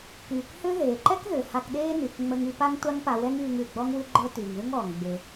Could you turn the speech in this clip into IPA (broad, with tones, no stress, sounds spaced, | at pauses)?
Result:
k yː˩ k h ʏ˥ ð eː˩ ǃ ɛ˥ k ð ʏ˩ h a˧ k ɗ eː˥ n y˩ k ŋ͡m ə˧ ŋ y˧ p a˥ ŋ tʷ a˥ ŋ p a˧ w ɛ˥ ŋ yː˧ ŋ ʉ˩ ɡ͡b ɔ˥ ŋ w ʉ˥ ɡ͡ǃ ə˞˥ t yː˩ ŋ ð ʉ˥ ŋ ɔː˩ ŋ ɡ͡b e˩